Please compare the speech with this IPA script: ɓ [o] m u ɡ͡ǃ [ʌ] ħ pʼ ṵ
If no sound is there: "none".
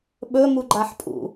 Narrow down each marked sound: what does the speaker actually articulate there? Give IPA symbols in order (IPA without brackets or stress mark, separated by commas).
ɵ, a